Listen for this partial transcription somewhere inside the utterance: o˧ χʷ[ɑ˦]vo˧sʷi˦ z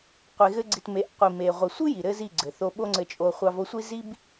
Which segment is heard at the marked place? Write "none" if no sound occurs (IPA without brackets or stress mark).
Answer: ɑ˧